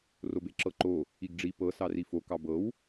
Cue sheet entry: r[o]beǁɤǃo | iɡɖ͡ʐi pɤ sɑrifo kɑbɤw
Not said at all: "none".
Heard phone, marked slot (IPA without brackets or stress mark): o